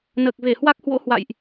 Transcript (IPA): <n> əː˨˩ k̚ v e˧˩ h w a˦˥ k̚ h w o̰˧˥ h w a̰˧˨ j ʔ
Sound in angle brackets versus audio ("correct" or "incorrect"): correct